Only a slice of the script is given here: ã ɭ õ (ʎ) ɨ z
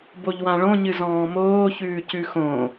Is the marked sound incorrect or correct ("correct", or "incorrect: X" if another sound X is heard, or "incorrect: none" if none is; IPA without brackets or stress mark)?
incorrect: ɲ